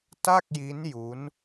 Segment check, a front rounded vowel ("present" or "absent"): absent